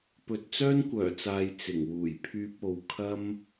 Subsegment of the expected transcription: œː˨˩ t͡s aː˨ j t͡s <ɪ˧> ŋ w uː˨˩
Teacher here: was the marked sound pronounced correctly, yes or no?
no